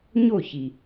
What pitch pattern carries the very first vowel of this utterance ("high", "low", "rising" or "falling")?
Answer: falling